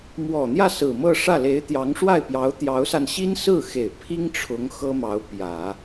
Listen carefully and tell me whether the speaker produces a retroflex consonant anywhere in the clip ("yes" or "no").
yes